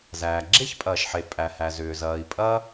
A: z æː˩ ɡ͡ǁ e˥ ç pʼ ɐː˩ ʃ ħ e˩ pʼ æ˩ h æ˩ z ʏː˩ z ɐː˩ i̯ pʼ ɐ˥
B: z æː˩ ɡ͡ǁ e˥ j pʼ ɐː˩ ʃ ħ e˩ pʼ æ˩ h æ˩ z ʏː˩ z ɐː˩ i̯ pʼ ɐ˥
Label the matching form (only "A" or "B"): A